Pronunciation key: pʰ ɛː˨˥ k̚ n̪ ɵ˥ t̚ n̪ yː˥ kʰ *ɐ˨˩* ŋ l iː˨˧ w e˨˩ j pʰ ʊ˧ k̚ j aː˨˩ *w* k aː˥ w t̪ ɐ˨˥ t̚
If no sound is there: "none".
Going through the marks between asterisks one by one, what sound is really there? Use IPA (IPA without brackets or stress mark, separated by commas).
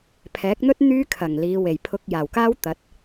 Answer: ɐ˨˩, w